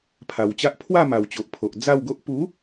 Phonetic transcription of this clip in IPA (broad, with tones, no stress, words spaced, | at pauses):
pʰa˨˩wt͡ɕa˦ʔ pʰwa˥˧ma˨˩wt͡ɕo˨ʔpʰo˨ʔ d͡za˥˧wɡo˦ʔ pu˨˦